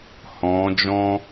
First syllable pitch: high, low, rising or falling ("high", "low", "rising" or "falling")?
rising